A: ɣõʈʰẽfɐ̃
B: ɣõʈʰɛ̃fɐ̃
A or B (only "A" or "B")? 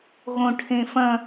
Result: A